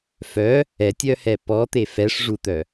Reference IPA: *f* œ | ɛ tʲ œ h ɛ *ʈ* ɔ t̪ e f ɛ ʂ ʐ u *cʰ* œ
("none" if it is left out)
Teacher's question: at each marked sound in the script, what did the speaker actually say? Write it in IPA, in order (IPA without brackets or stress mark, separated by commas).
f, p, t̪